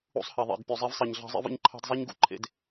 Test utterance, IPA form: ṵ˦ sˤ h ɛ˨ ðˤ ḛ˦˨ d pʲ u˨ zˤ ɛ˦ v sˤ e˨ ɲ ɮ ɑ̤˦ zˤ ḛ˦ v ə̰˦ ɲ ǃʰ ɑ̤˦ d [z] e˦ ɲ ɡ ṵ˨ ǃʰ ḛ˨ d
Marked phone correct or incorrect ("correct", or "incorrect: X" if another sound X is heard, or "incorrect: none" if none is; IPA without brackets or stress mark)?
incorrect: zˤ